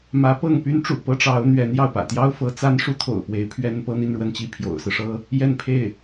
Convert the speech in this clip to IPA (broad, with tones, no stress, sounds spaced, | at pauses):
m ä˧˥ p ɤ˥˩ ŋ p y˥ n ʈ͡ʂ ṵ˨˩ p ɤ˥ ʈ͡ʂ ɑ˧˥ ʊ̯ n̪ ɥ ɛ˧˥ n j ɑ˥˩ ʊ̯ p ä̰˨˩ t̪ j ɑ˥ ʊ̯ f ɤ˧˥ t͡s a˥ n ʂ u˥ t̪ʰ o̰˨˩ ʊ̯ p w e˧˥ ɪ̯ pʰ ɥ ɛ˥ n p ɤ˥ n̪ i˥˧ n ɻ w ə˥˧ n t͡ɕ i˥˩ pʰ j o̰˨˩ ʊ̯ s ɹ̩˦ ʂ ɤ˥ | j ɛ˥˧ n pʰ e˥˩ ɪ̯